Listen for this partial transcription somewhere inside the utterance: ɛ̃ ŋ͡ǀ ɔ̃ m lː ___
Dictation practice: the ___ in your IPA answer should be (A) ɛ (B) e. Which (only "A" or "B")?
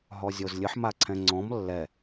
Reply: A